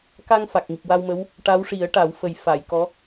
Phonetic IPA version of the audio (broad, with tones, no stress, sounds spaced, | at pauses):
k a˧ ŋ f a˨˩ k̚ ŋ i˨˩ p̚ w a˧ w m ə˧˥ w | ʈ a˧˥ w ʂ i˨˩˦ ə̯ ʈ a˨˩˦ w f ə˨˩ j f a˨˩˨ j k ɔ˧˥